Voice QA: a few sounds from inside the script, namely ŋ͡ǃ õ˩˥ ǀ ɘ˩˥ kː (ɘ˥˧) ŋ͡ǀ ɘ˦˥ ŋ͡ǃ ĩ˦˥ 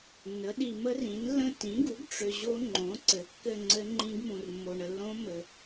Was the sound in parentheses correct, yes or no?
yes